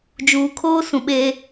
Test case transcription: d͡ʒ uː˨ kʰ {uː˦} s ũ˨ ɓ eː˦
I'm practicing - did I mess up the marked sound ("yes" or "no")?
yes